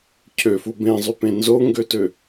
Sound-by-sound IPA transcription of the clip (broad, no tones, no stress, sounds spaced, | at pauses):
cʰ ø f u b ẽ zˤ y p ẽ n z o ŋ ɡ ø t ø